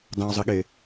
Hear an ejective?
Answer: no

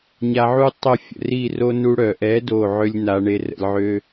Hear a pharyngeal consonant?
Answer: yes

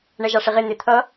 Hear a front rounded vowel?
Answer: no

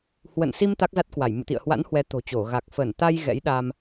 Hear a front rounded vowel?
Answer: no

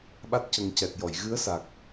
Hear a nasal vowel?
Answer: no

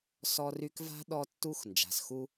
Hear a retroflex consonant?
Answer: no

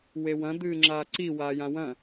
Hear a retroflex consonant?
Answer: no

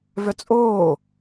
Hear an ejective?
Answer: yes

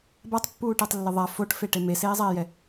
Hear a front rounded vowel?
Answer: no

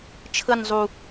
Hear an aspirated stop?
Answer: yes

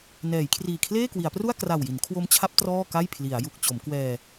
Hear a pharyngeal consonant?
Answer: no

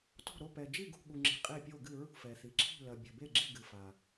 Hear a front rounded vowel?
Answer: no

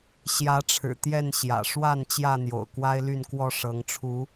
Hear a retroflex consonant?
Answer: yes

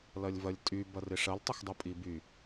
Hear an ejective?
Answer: yes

